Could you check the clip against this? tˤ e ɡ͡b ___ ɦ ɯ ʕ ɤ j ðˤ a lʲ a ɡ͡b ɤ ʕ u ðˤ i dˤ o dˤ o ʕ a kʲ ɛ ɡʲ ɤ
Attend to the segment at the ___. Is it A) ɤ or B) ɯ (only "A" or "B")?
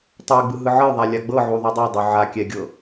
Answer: B